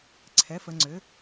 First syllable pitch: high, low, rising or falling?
rising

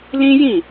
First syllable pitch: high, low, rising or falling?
high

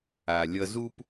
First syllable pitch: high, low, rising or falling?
low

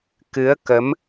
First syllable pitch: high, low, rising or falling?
rising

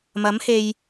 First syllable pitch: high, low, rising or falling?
rising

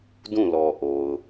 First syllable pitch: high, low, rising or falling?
falling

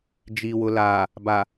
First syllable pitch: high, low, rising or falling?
low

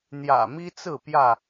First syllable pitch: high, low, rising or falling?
low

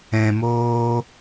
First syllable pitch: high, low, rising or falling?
low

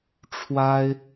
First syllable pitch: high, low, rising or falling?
high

